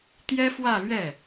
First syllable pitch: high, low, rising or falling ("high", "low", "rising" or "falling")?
high